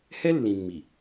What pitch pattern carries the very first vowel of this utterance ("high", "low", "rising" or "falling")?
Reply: high